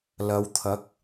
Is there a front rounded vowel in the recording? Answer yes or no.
no